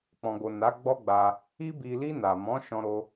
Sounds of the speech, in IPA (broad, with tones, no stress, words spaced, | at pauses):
k͡pɔ̃˨ɡo˨ na˨˦ɡ͡bɔ˦ɡ͡ba˧ | i˧bi˨li˧ na˨mɔ̃˨˦ ʃɔ̃˧ɾo˧